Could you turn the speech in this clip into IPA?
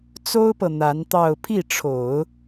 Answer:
t͡so˥ʊ̯pɤ˨ n̪a˧˥nt̪ɑ˥˧ʊ̯ pʰi˥˩ʈ͡ʂʰo˨˩˦ʊ̯

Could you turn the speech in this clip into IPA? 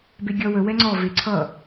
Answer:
beɡʲʌ wə wɛŋ͡ǀɔ veǀʰʌ

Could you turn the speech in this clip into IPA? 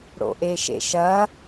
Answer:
ɽo̰ʔeʃḛʃɐ

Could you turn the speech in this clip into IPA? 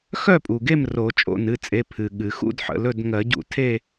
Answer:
xœ˥˨pʼu˩ɡe˥˨m ro˨˩˦ t͡ʃʼo̰˥˨nɨ˩˧˩t͡sʼe˩˧˩ pʰɨ˩ɠɨ˩xṵ˥˨d ħə̰˩˧˩lɵ˥˨d ŋɜ˨˩˦ɟṵ˨˩˦tʰe˥˨

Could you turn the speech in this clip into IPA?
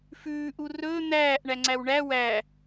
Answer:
fʉː ʔurɵː n̪æːʔ ɳæŋ͡ǀæwɳæ wæ

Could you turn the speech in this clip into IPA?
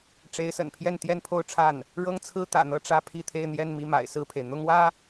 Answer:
ʈ͡ʂe˧˥ɪ̯sə̰˨˩npʰjɛ˥˧n t̪jɛ˥˧npʰo˥˧ʊ̯ʈ͡ʂʰa˥˩n | ɻɤ˥ŋt͡sʰɹ̩˥t̪ä̰˨˩n̪ɤ˥˧ ʈ͡ʂä˥˧pʰi˥˧t̪ʰe˥˧ɪ̯ n̪jɛ˥˧nmi˥˩ma̰˨˩ɪ̯ sɹ̩˥˩pʰe˩ɪ̯ n̪ʊ˥ŋwä˥

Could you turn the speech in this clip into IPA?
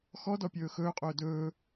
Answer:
xɔdɔpʲɵː xɵːqʼɵː dɵː

